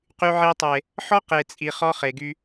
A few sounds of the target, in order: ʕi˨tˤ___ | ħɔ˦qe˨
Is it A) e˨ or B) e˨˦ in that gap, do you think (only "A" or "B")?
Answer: A